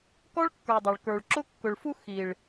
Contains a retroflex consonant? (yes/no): yes